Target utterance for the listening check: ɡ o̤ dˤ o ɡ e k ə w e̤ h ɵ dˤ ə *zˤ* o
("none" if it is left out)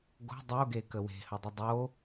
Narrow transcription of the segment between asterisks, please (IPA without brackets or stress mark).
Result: dˤ